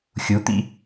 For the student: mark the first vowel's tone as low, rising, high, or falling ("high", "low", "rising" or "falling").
rising